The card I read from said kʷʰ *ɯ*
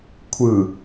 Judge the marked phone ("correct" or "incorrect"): correct